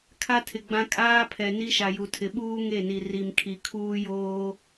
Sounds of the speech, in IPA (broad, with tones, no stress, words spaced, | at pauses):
kʰa˦tʰɪ˨ɡ͡bã˦ kʼaː˦pʰɛ˨ ni˦ʃa˨ju˨tʰɪ˨ ɓuː˦ ŋe˦˨ni˨ ri˨mkʰi˨ kʰuː˦joː˦